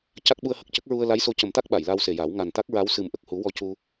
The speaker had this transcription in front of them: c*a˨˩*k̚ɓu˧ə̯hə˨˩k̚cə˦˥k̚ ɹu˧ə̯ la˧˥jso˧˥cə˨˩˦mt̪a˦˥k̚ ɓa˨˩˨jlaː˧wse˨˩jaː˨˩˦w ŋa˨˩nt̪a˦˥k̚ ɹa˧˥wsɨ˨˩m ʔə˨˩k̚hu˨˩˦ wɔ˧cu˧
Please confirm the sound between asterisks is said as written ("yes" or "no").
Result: no